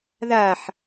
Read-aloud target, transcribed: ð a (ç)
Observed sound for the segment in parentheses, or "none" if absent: ħ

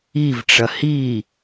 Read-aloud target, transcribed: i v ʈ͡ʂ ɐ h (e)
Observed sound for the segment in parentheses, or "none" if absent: i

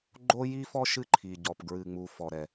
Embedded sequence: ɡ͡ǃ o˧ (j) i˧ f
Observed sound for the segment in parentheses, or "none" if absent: j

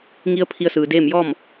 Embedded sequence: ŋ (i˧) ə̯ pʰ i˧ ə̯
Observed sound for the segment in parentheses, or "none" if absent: i˧˥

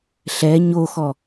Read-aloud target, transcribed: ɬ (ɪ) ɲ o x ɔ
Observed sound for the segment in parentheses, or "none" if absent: ɛ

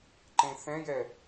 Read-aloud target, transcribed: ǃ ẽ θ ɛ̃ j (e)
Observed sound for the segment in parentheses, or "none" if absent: ɛ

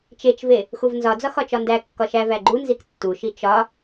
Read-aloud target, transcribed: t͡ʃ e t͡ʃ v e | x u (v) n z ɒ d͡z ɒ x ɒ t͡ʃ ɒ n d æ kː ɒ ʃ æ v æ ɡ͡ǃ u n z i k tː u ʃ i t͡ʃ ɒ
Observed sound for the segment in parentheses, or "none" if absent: v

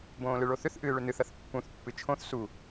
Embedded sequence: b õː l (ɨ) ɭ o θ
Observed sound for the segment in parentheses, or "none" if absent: ɨ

